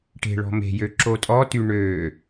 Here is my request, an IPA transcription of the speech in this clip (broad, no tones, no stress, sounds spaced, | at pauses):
ʈ e̤ ɭ ɔ̤ m e̤ j ø ǁ o tʼ ɔ t y ɳ ø